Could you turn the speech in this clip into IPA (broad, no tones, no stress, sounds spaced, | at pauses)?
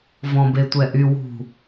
v ɔ̃ b e tʷ ɛ ʔ y w ṳ